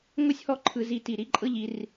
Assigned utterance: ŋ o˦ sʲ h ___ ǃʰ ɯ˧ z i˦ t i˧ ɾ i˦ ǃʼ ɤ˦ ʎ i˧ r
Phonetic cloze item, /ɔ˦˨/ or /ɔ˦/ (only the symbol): ɔ˦